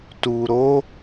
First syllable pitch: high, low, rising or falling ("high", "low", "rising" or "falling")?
low